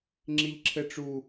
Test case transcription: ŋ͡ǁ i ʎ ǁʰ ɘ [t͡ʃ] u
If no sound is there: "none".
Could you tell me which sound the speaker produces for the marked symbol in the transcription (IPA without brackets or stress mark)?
ʈ͡ʂ